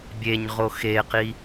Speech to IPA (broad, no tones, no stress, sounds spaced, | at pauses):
bʲ e ɲ ʁ o x e q i